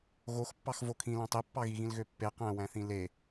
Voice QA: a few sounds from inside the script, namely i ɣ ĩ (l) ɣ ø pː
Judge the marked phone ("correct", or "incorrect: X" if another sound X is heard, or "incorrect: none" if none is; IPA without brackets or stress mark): correct